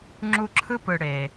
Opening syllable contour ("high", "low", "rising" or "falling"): high